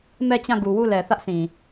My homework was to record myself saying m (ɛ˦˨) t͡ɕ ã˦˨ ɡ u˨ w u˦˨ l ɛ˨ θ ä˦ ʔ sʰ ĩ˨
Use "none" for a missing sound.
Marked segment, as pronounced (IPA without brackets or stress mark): ɛ˦˨